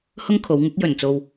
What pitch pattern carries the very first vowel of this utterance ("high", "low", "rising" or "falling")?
high